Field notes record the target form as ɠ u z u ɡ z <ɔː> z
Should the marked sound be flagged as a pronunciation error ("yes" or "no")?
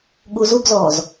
no